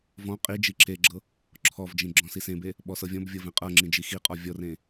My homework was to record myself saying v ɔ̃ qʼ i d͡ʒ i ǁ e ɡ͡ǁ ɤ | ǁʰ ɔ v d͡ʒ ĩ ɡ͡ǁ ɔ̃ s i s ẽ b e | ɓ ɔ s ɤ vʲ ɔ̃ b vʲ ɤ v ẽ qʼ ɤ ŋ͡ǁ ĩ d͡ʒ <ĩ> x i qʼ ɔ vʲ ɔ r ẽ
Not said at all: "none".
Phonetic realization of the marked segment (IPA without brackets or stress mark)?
i